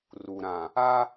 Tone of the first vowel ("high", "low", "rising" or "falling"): low